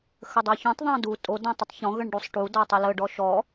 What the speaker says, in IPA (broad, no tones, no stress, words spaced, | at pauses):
xədˤɑçũtˤ ðˤɑ̃du tʼo dõtˤətˤçɔ̃ ɣəɳɖusˤʈu dɔtˤələ ɖɔʃɔ